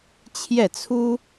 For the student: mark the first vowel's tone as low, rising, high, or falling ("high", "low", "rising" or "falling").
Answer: falling